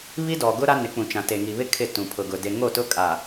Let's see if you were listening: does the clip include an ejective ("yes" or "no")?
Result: yes